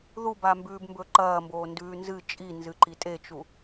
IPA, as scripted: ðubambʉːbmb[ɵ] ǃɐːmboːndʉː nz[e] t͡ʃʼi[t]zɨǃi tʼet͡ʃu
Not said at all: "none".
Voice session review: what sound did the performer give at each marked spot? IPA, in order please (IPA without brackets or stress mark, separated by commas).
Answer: ɵ, ɨ, n